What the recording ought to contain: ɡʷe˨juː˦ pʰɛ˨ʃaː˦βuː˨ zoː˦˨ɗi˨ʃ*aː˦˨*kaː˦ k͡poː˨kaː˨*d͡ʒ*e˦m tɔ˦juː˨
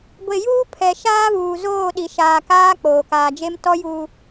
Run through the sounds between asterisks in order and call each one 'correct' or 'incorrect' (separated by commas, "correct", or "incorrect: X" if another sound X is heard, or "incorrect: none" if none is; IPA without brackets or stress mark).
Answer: incorrect: aː˨, correct